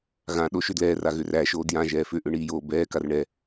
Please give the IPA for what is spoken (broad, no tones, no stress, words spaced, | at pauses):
ɣãɗo ʃʏdlɛːra ɣʏræʃoː djãʒɛː fʏʔʏ ɳiːjoːbɛːkar ɳɛ